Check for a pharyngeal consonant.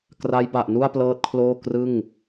absent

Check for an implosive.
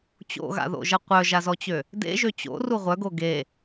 absent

